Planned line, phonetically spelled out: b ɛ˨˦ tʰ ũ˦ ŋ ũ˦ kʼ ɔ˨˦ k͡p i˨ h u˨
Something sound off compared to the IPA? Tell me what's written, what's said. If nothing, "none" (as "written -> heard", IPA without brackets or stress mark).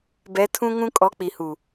none